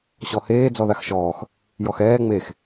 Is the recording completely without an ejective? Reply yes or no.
yes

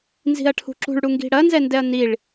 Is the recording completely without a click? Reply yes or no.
no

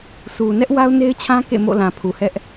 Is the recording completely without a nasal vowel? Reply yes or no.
no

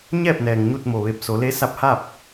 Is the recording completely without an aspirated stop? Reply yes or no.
yes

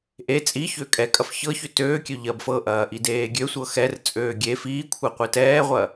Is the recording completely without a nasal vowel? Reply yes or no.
yes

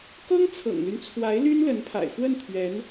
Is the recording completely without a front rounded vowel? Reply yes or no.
no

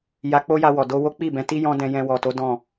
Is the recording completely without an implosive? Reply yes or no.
yes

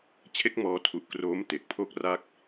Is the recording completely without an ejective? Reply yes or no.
yes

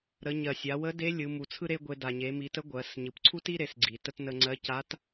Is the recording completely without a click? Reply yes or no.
no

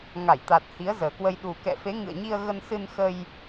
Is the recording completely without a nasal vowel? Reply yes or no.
yes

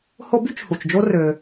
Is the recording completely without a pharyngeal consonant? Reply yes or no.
yes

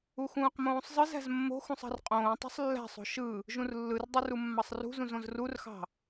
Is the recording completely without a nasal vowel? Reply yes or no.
no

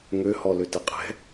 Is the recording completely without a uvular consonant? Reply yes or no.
no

